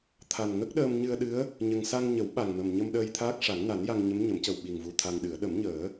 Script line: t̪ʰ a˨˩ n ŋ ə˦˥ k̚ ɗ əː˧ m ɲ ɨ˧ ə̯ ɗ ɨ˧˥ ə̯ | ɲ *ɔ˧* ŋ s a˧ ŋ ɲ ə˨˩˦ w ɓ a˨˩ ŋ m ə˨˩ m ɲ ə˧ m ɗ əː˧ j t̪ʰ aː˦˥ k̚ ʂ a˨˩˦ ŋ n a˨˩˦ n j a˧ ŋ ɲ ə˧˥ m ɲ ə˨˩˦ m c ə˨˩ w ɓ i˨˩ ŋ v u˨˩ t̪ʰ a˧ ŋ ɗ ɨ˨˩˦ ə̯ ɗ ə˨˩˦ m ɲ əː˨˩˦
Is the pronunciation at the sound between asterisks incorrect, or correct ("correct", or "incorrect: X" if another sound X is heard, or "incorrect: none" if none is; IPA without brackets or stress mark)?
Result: incorrect: ə˧